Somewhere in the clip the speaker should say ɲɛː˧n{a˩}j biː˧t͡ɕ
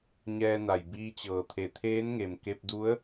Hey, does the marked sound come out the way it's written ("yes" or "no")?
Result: yes